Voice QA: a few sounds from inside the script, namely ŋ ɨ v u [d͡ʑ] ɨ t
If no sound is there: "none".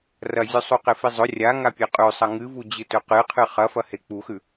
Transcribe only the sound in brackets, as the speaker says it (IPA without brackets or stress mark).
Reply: d͡ʑ